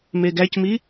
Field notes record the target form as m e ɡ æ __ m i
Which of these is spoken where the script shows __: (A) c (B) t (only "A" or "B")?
A